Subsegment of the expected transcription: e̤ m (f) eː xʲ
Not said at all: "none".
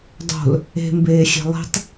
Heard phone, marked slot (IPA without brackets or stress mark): b